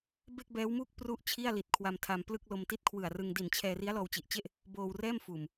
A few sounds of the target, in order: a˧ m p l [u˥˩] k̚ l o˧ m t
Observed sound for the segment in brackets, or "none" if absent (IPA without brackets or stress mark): ɯ˥˩